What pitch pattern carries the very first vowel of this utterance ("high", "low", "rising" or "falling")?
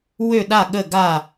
falling